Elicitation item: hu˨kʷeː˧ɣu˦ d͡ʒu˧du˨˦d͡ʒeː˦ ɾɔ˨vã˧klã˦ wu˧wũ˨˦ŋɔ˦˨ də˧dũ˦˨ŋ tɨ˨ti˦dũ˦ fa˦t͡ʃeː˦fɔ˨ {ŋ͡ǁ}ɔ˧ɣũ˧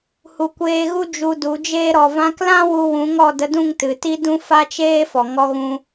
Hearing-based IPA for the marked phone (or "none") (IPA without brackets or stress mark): ŋ